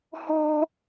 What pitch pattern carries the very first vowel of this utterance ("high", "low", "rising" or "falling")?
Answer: high